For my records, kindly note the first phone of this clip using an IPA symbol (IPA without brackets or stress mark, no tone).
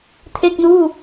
tʰ